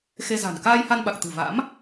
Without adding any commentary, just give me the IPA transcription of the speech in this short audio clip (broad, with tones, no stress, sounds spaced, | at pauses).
x e˧ z a̤˨˩ n k aː˧ j h a˧ n ɓ a˨˩ k̚ t̪ ɨ̤˨˩ v a̰˧˥ m